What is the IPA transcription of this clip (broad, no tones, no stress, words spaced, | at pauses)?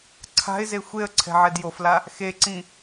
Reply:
ǀʰa̤ɪ̯ze xʷeə̯ ǀʰɛ̤ʕɛdjofla | xeǀĩ